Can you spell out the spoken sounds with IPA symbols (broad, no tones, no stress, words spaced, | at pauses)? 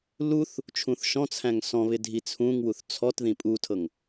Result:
luθ | t͡ʃʰũθʃɔ̃t͡sʰæ̃ŋ sɔ̃βɪ dʱit͡sʰũŋwuθ t͡sʰɔt ðĩpʼutʰɤŋ